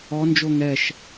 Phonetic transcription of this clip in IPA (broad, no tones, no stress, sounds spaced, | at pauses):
ɔ n d͡ʒ o ŋ ɛ ʃ